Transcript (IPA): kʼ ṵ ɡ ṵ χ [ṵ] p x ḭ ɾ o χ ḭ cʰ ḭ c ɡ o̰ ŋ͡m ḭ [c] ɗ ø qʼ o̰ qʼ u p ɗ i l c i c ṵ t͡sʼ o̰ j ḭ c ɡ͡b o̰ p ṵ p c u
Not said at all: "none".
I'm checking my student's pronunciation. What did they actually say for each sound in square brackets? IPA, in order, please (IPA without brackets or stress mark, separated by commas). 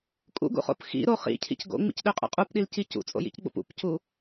o̰, c